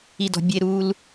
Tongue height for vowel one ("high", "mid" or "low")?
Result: high